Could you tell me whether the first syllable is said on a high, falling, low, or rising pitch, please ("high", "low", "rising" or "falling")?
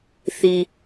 low